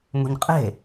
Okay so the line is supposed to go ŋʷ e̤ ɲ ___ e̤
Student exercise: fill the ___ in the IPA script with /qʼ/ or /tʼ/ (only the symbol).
qʼ